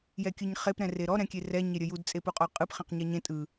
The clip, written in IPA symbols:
j ɛ kʲ ɯ ɲ χ e p ɾ ɛ̃ r e ɾ ɔ ɾ ɛ̃ kʲ e r ɛ ɲ e ɾʲ ə j u d t͡sʼ e p u qʼ ɔ qʼ ɯ p χ ɛ̃ q ɲ ɛ ɲ ẽ tʼ ɯ

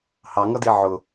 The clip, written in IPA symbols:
h ɑ ŋ ʌ d i ʕ ʊ

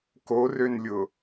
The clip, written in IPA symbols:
k o r ø n lʲ ʊ

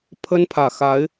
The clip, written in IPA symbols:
pʰ ə˦ n pʰ ä˨˩ x a˨˦ ɪ̯

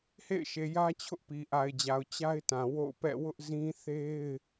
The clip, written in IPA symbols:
h ḛ˦˨ ɪ̯ ʃ e˨ j ä˦ t͡ɕʰ ʊ˦ ʔ p i˨ ʔ a˨ ɪ̯ d͡ʑ a˨ ʊ̯ t͡ɕ a˦ ɪ̯ t ã˨ w o̰˦˨ ʊ̯ p ɛ̰˦˨ w ʊ˦ ʔ z ĩ˦ θ e˦ ɪ̯

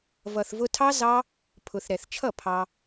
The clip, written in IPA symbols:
v ʌ˨ θ v ʊ˧ tʰ ɑ˦ z ɑ˦ | pʰ ʊ˨ θ ɾ ɛ˨ θ t͡ʃʰ ʌ˦˨ pʰ ɑ˦

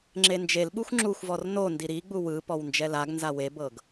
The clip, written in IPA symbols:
ŋ͡ǁ e n d͡ʒ e l ɓ u xʷ ŋ͡ǁ u xʷ v ɔ r n o n d i ɾ i ɡ͡b u w ɯ p ɔ w n d͡ʒ ɛ l a ɡ n z a w e b ɤ ɡ

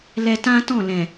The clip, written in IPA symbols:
l ɛ˧ t ã˦ t ɔ̃˦˨ l ɛ̃˨

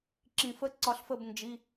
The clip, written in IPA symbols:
ǁ ĩ˨ f ə˦˥ ǀ ɒ˦˥ ɬ f ə˥˨ b n d͡ʒ i˧˥˧

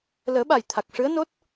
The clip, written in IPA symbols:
l əː˨˩˦ ɓ a˨˩ j t̪ʰ a˨˩ k̚ ʂ ɨ˧˥ ə̯ n o˦˥ t̚

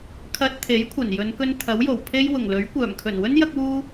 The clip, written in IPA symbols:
kʰ ɐ˧ t̚ t̪ʰ e˨˥ j kʷʰ ɐ˨˩ n j ɵ˨˧ n k ɵ˧ n t̪ʰ ɐ˨˥ w j o˨˩ w pʰ e˥ j w ʊ˨˩ ŋ l ɵ˨˥ ɥ kʷ œː˨˩ m kʰ ɵ˨˩ n w ɵ˥ n j ɐ˥ k̚ w uː˥

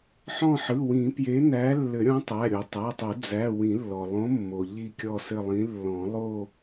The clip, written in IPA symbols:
ħ ɔ̃˦˨ ħ ɯ˩˧˩ w ĩ˨˩˦ p j e˨˥ n æ˨˥ lː ɘ˨˩˦ ɾʲ ɔ̃˨˥ tˤ æ˩˧˩ ɾʲ o˩ tˤ æ˩˧˩ tˤ o˨˩˦ d͡z æ˩˧˩ w ĩ˨˩˦ lː ɔ˩ lˠ õ˨˥ mː o˩ ʎ i˦˨ kʲ ɔ˦˨ s ɘ˦˨ lˠ ĩ˨˥ lː ɔ̃˨˩˦ lˠ o˦˨

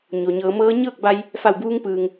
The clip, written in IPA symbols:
ɲ o˩ ɲ ɤː˩˧ m ɤː˧˥ ɲ ɤː˥˨ k̚ b a˧ j | f a˧˩ w b uː˧ ŋ p ɯː˩ ŋ

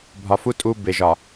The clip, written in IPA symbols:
bʱ ɒ˨ f u˦ tʼ u˦ b e˨ ʒ ɒ˨

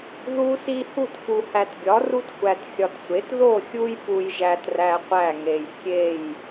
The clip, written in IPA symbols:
ð u˦ s i˦ h u˥˨ t f u˨ h æ˨ t ɡʲ ɒ˩˥ r u˦ t xʷ æ˨ t xʲ ɒ˨ t sʷ e˩˥ t ð o˥˨ xʲ u˦ j p u˦ j ʒ æ˦ t r æ˦ qʷ æ˥˨ ŋ e˨ j kʲ e˥˨ j

